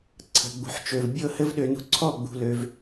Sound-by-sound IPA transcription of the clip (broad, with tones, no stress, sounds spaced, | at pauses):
ǀʰ ə̤˨ ɡ͡b ṳ˨ ħ t͡ʃ ø˨ v bʲ ɤ˦˨ h ɘ˦ v ɗ ø˧ n ṳ˦ ǀʰ ɔ˦˨ ɡ͡b ṳ˧ l ø˧ v